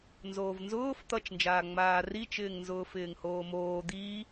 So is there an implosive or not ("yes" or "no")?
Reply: no